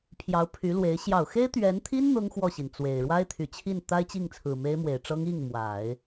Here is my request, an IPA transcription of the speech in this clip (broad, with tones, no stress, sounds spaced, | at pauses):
pʰ j ɑ˧˥ ʊ̯ pʰ y˧˥ l w e˧˥ ɪ̯ ɕ j ɑ˨˩ ʊ̯ x e˥ ɪ̯ t̪ ɥ ɛ˧˥ n t̪ʰ i˥ n n̪ ʊ˥ ŋ x w ɔ˥˩ ɕ i˩ n t͡s w e˨˩ ɪ̯ ɻ w a˥ ɪ̯ t̪ʰ y˨˩ t͡ɕʰ i˥˩ n t̪ a˥ ɪ̯ t͡ɕ i˥˩ ŋ t͡sʰ ɹ̩˨˩ m e˥ ɪ̯ m w e˨˩ ɪ̯ ʈ͡ʂ ɤ˥ ŋ i˥˩ ŋ m w a˨˩˦ ɪ̯